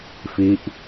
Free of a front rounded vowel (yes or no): yes